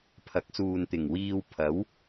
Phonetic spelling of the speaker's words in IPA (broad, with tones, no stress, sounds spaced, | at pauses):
pʰ ɐ˨˥ k̚ s uː˨ n t̪ ɪ˨˩ ŋ w iː˧ w pʰ ɐ˨˥ w